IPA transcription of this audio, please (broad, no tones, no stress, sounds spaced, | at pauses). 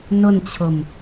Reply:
n ʊ n t͡ɕʰ ʊ m